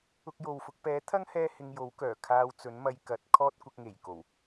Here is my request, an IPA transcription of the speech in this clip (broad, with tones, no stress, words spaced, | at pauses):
ʊ˧k̚jo˨wfʊ˧k̚ pɛː˨˥t̪ʰɐ˥ŋ hɛː˥hɪ˧ŋjo˨˥w kœː˨˩kʰaː˧wt͡sɵ˨˥nmɐ˧j kɐ˨˥t̚ kʰɔː˥t̚kʷɐ˧k̚ŋe˨˩jko˨˩w